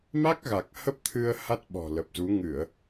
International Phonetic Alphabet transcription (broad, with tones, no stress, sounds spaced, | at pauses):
m a˦˥ k̚ ɣ a˨˩ k̚ h ə˦˥ p̚ t̪ʰ ɨ˧ ə̯ h a˦˥ t̚ ɓ ɔ̤˨˩ l ə˨˩ p̚ z u˨˦ ŋ ɨ˧˩˨ ə̯